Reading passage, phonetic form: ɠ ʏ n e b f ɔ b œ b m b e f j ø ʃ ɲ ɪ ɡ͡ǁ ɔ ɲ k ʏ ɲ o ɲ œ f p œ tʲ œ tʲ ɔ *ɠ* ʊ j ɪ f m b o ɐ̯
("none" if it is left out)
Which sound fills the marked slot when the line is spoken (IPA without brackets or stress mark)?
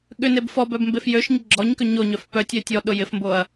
ɗ